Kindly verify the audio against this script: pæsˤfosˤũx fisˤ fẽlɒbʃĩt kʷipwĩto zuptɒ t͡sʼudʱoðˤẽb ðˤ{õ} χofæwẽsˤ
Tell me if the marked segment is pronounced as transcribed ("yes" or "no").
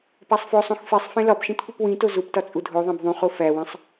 no